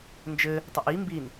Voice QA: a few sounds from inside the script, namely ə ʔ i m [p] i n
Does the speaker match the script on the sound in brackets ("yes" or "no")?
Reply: no